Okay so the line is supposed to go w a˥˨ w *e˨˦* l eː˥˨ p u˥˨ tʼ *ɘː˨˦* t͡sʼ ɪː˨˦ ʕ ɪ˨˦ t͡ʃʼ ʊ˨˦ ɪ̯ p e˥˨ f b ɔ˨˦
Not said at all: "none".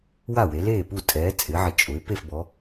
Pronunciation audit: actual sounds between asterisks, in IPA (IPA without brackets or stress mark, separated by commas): e˨˦, ɛː˨˦